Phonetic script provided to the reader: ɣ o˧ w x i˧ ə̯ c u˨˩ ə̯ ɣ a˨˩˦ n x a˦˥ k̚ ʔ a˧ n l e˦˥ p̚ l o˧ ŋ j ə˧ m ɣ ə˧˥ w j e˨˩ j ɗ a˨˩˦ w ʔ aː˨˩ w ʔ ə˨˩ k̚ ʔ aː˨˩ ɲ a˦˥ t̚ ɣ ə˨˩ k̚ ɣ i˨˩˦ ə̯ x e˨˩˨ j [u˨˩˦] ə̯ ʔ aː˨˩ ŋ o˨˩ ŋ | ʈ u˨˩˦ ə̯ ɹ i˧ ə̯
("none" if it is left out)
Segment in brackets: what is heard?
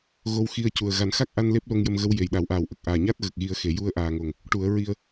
u˧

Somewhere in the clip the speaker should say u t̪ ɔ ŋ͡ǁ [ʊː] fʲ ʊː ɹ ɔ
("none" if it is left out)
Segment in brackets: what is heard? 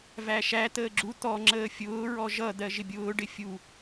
əː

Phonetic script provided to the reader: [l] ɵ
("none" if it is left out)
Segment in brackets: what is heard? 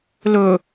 l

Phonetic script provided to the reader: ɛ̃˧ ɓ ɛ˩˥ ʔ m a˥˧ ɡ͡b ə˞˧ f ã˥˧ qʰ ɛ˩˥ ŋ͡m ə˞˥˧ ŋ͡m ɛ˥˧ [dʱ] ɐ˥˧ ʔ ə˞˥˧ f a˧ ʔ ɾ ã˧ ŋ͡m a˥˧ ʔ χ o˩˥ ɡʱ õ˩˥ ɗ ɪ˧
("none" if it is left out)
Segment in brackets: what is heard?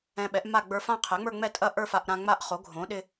tʼ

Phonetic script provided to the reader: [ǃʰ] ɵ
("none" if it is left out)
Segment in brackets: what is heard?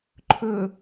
ǃʰ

